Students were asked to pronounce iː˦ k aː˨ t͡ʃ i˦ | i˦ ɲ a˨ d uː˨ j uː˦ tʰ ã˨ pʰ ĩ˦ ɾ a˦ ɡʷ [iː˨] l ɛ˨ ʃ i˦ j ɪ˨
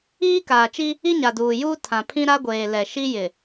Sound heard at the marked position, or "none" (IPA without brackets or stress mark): eː˨